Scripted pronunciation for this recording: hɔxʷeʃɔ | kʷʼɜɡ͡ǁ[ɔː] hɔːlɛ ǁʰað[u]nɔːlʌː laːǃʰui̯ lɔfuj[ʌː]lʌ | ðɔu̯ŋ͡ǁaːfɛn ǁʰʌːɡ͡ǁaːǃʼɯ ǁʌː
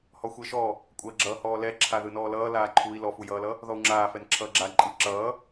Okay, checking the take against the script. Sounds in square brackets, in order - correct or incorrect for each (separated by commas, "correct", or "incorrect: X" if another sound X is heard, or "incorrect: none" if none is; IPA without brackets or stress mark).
incorrect: ʌː, incorrect: ɯ, correct